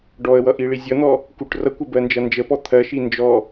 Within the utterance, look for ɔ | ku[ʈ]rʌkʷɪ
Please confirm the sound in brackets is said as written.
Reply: yes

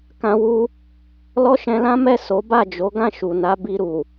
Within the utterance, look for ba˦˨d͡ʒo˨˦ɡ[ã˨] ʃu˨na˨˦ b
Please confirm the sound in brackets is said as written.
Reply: no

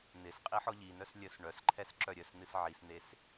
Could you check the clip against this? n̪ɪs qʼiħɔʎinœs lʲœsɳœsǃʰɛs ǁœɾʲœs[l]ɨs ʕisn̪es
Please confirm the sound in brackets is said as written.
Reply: no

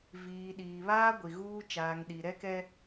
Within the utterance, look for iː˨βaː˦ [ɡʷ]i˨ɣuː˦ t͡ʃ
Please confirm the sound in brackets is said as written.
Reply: yes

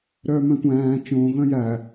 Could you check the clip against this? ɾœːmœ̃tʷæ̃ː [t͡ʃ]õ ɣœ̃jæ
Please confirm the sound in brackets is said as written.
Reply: yes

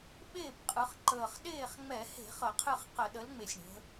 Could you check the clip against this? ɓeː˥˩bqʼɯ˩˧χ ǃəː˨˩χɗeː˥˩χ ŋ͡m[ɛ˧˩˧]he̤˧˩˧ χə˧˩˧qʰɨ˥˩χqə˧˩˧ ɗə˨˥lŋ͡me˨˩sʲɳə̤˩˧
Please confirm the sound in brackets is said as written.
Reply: yes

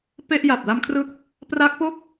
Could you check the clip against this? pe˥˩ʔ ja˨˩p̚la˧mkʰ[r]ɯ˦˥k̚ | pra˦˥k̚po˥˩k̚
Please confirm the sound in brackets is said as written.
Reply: yes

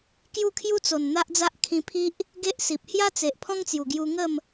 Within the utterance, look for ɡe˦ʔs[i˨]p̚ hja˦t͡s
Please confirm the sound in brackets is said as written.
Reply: yes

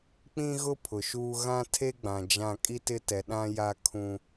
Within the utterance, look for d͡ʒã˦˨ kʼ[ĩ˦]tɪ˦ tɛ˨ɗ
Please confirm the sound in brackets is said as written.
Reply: no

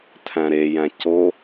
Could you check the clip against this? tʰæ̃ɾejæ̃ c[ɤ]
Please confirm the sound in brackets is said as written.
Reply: no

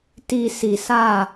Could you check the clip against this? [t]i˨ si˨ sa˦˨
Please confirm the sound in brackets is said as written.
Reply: yes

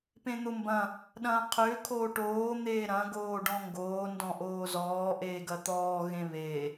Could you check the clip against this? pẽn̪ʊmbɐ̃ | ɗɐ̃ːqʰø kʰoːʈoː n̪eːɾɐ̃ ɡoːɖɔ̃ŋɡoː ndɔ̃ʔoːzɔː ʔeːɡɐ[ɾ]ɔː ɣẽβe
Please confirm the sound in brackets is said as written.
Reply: no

